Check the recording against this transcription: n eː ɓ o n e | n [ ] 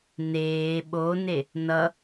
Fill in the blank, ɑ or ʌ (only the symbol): ʌ